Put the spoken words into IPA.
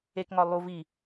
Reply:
e k ŋ ɒ lˠ u v i

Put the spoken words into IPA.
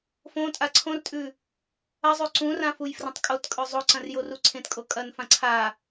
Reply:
f õ tʼ a ǀʰ õ r tʼ ʉ | ɐ zˤ ʉ ǀ ũ r ã f u j f r ɐ̃ tˤ kʼ o t kʼ ɵ zˤ o ǀ ɐ̃ r j o r u ǀʰ ẽ t kʼ o kʼ ɐ n f ã ǀʰ a

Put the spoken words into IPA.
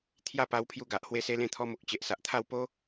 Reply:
t̪ʰ j a˥˧ p a˧ w pʰ j u˧ ɡ a˨ ʔ h w e˧ s e˧ l ẽ˧ t̪ʰ ɔ˧ m o˨ k̚ t͡ɕ e˨ ʔ s a˨ ʔ t̪ʰ a˥˧ w p o˦

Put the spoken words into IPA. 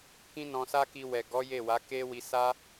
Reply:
k ĩ˦ n ɔ̃˧ s a˦ k i˧ w ɛ˨ ɡ ɔ˨˦ j e˦˨ w a˨˦ k e˦ w i˧ s a˦

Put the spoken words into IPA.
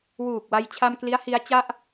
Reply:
w uː˨˩ k̚ w a˧ j t͡ɕʰ a˧ m k l i˦˥ a̯ h i˦˥ a̯ t͡ɕ a˥˩ ʔ

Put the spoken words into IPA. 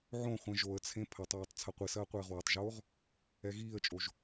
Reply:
ʕ õ χʷ ɛ̃ ʒ o ə̯ t͡sʰ ẽ pʰ ɐ tˤ w a tˤ t͡sʰ ɐ qʷ i s ɐː qʷ eː ʁ w ɛ tˤ ʒ oː ʁ | ɛ ɣ iː ə̯ t͡ʃʼ o ʒ

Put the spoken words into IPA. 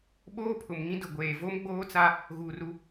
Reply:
ɓ oː˦ pʰ ʊ˨ m ŋ ĩ˦ d ʊ˨ ɡʷ eː˨ v o˦ m ɡ͡b oː˦ t͡s a˦ | ɣ uː˨ r u˦

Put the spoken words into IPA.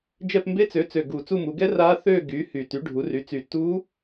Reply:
d͡ʒ ɛ˦˨ p m b e˦˥ t͡s ø˩˥ t͡s ø˨˩ ɡ uː˨˩ t͡s u˦˨ m u˩˧ ɡ ɛ˦˥ r a˦˥ θ øː˦˨ ɡ yː˩˥ h y˨˩ t y˩˥ ɖʱ u˩˥ r y˩˥ t͡s y˨˩ t uː˦˥

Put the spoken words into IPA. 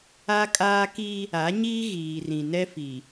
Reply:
a˦ kʼ aː˦ k i˦ | a˨˦ ɲ iː˦ ɣ iː˨ r ĩ˨ n ɛ˦ f i˨

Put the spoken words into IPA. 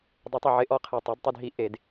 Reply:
dˤ ɪ˨˩˦ tˤ ɪ˨˩ ʕ ɪ˩˥ ʔ ɔ˩˥ qʰ e˨˩ tˤ e˩˥ d tˤ ɪ˧ d ɦ i˧ ʔ e˨˩˦ d

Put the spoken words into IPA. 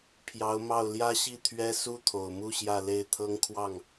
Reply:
pʰ j ɑ˧˥ ʊ̯ m ɑ˥˩ ʊ̯ l j ä˥ ɕ i˥˩ t̪ʰ ɥ ɛ˥ s u˥ t̪ʰ o˨˩ ʊ̯ m u˥˧ ɕ j ä˥˧ l e˥˩ ɪ̯ t̪ʰ ɤ˥ ŋ kʰ w ɑ˥˩ ŋ

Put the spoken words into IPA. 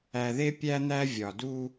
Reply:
æ˨ ð e˦ pʲ æ˦ n̪ æ˦ vʲ ɒ˨ d u˦

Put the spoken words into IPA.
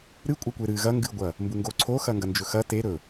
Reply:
ɾ ɨ kʷʼ ɐ kʷ e ɾ ɨ ɣ ɐ ŋ ɡ ɨ ɡʷ ɐ | m b u ŋ ɡ o ǀʰ o x ɐ ŋ ɡ ɐ n d͡ʒ ɵ x ɐ t e ɾ ɵ

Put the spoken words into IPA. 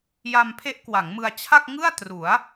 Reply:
j a˧ m pʰ e˦˥ ʔ k w a˩˦ ŋ m ɯ˧ a̯ t͡ɕʰ a˥˩ k̚ ŋ ɯ˥˩ a̯ t r u˩˦ a̯

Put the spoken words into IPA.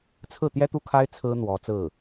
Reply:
t͡sʰ ɹ̩˥˩ t̪ j ɛ˥ t̪ u˥˩ kʰ a˥ ɪ̯ t͡sʰ ɹ̩˥ n̪ w ɔ˧˥ t͡s ɹ̩˥˩

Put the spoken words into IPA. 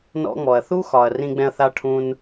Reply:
n ɔ̰˧ ŋ͡m ɔ˨ ɐ̯ θ u˦ x ɒ˨ ɐ̯ r ĩ˧ ɡ͡b ɛ̃˧ ɐ̯ θ a˧ ʈʰ ũ˧ n

